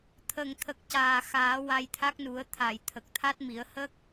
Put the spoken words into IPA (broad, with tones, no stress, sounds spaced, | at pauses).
t̪ʰ ə˨˩ ŋ t̪ʰ ə˨˩ k̚ c aː˨˩ x aː˨˩˦ w a˧ j t̪ʰ a˦˥ k̚ n u˨˩˦ ə̯ t̪ʰ a˨˩˨ j t̪ʰ ə˨˩ k̚ t̪ʰ a˦˥ t̚ m i˨˩˦ ə̯ h ə˦˥ k̚